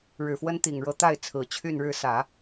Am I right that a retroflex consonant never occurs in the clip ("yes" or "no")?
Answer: no